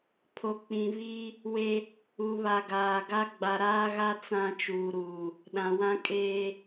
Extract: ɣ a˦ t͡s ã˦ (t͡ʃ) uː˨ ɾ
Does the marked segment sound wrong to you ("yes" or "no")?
no